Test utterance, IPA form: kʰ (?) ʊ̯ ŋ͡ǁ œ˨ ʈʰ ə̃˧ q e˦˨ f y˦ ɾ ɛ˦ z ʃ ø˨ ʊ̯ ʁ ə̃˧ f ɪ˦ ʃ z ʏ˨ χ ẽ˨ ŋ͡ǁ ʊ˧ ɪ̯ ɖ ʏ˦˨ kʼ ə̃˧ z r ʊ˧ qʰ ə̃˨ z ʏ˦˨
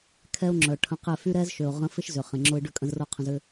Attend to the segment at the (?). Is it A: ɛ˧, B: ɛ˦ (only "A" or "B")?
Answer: B